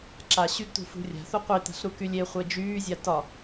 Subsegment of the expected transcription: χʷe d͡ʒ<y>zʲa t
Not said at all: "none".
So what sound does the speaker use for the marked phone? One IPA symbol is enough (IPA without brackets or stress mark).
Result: yː